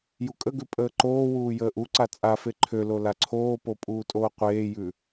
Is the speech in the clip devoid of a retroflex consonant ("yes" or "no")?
yes